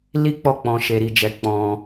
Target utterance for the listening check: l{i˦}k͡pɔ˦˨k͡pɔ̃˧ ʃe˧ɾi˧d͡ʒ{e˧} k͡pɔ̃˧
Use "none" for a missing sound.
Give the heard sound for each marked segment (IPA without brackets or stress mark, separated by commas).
i˦, ɛ˧